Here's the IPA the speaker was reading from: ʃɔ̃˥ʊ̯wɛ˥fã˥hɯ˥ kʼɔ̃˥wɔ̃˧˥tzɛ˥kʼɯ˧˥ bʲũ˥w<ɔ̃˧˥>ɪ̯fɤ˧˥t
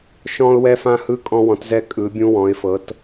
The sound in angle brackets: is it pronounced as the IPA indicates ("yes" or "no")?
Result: yes